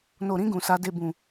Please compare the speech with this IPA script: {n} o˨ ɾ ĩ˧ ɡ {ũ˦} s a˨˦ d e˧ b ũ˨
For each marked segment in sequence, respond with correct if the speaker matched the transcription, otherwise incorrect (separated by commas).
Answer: correct, incorrect